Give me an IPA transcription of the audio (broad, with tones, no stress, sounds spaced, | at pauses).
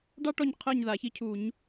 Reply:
ɖ ɑ˥ ʈ ɔ˦˨ ɲ qʰ əː˦˨ ɲ ð a˨˩˦ ç i˧˥ cʰ u˨˩˦ ɲ